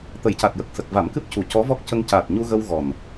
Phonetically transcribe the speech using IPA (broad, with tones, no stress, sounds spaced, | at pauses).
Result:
t̪ ə˨˩˨ j c a˨˩ t̚ j ə˨˩ k̚ s ə˨˩ k̚ v a˨˩˦ m k ɨ˦˥ p̚ c u˨˩ c ɔ˧˥ v ɔ˦˥ k̚ c ə˧ ŋ c a˨˩ t̚ ɲ u˧ ɣ ə˧ w ɣ ɔ˨˩ n